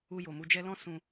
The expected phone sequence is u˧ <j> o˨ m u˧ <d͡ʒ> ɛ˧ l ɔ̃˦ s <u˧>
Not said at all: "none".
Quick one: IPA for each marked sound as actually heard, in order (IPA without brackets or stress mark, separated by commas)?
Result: j, d͡ʒ, ũ˧